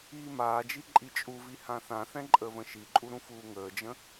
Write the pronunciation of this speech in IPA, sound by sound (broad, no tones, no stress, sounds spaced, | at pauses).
iː m aː d͡ʒ i ǃʼ i t͡ʃʼ u v i h ã θ ã θ ɛ̃ ǃʼ əː v ə̃ ʃ i ǃʼ u ɾ ũ f uː ŋ əː d͡ʒ ə̃